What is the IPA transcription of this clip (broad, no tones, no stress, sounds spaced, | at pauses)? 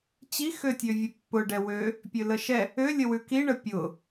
t͡ɕ i x ø tʲ ø vʲ ʉ pː ʊ ɖ ɛ w ø | pʲ ø l ə ʃ ɛ | ø lʲ ə w ʉ k i ɳ ə pʲ ʊ